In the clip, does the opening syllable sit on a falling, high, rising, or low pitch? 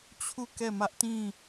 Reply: falling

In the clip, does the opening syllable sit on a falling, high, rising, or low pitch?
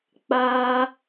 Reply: high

